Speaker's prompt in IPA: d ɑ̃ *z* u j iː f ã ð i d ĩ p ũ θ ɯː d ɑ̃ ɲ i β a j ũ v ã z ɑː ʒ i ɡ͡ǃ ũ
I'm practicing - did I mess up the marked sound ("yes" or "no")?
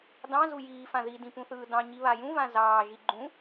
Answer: no